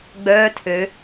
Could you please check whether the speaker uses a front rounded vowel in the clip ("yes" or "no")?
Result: yes